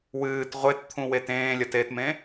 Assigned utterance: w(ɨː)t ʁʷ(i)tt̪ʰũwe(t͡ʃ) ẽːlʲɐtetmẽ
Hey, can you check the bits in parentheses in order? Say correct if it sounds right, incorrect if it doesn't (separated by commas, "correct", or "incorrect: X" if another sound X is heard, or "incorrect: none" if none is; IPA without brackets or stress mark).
correct, incorrect: e, incorrect: t